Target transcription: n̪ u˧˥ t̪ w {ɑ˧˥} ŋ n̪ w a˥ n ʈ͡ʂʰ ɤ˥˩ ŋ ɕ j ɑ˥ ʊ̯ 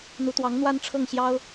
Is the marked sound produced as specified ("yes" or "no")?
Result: yes